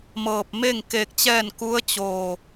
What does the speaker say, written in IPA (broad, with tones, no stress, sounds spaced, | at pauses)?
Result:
m ɤː˧˩ p̚ m e˥˨ ŋ k eː˧ k̚ t͡ɕ ɛː˥˨ n k u˧˥ ə̯ t͡ɕ oː˧˩